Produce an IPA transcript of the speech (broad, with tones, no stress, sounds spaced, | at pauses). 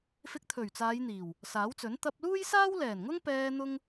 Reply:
f ɪ˧ k̚ t̪ʰ ɵ˨˩ ɥ t͡s aː˨˧ j n̪ iː˨˩ w | s aː˨˥ w t͡s ɵ˨˥ n t̪ ɐ˧ p̚ l uː˥ j s aː˥ w l ɛː˨˩ n ŋ ʊ˥ ŋ p ɛː˧ n̪ ʊ˥ ŋ